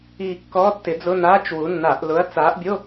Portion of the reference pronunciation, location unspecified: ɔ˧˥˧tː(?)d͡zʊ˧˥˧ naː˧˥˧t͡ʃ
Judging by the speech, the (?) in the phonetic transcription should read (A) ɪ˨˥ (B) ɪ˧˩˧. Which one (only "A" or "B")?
A